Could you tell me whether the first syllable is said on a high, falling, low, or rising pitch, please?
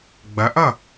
rising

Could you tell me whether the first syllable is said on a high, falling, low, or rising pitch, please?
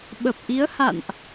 low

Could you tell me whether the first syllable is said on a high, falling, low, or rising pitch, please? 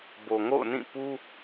low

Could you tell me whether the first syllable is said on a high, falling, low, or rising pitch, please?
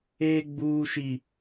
high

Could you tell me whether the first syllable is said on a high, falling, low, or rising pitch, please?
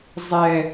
high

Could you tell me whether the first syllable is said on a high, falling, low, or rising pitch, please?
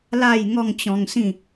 falling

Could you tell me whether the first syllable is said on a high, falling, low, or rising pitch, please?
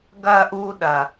high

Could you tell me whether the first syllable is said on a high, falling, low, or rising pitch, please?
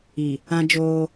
low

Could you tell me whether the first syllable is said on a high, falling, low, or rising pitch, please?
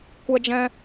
high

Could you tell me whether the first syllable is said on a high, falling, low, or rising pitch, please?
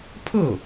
falling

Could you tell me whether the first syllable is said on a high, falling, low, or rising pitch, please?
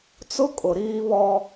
high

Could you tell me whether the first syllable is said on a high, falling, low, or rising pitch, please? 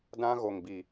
high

